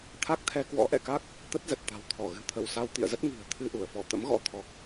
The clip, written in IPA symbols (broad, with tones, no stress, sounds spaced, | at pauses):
t̪ʰ a˦˥ k̚ t̪ʰ ɛ˧ k w ɔ̰˧˥ ʔ ɛ̰˧˨ k a˦˥ k̚ | t̪ ə˦˥ t̚ z ə˨˩ t̚ t̪ a̤˨˩ w t̪ʰ ɔ˧˩ ɣ ɨ̤˨˩ t̪ʰ ə˧˩ w s a˧ w t̪ ḭ˧˨ ə̯ z ə˦˥ t̚ ŋ i̤˨˩ ə̯ t̪ʰ ɨ˧ ʔ u˧˩ ə̯ f ɔ˧˩ t̪ ə̰˧˥ m ɣ ɔ̰˧˥ t̪ʰ ɔ˨˩ k̚